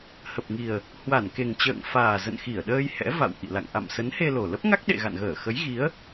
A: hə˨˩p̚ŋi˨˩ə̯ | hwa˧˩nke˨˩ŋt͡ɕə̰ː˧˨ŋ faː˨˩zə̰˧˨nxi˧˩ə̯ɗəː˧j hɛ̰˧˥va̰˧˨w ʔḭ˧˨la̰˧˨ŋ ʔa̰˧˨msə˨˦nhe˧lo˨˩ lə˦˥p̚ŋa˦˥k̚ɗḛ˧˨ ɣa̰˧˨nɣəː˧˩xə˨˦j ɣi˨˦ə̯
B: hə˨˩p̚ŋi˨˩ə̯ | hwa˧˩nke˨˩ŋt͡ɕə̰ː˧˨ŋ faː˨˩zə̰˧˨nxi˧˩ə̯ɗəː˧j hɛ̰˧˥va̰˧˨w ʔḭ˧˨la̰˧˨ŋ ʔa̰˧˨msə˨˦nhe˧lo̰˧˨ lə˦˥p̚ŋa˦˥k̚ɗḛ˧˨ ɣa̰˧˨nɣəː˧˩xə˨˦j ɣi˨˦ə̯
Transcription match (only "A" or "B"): A